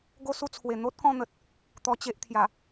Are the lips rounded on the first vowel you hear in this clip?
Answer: yes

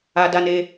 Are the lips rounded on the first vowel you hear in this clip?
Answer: no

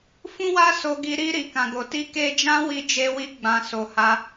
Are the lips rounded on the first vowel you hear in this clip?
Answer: yes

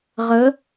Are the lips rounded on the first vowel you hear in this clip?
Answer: no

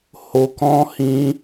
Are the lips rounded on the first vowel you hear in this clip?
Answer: yes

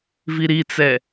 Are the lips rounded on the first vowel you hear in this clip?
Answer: no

